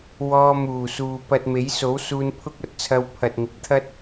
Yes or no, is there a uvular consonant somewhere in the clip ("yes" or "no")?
no